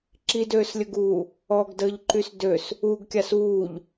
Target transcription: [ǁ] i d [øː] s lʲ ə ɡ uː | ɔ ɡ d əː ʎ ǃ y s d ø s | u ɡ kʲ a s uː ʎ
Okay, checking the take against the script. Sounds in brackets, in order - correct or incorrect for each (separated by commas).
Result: correct, correct